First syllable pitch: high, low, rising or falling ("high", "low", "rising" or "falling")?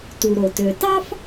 low